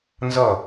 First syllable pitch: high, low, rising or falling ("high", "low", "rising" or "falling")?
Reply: falling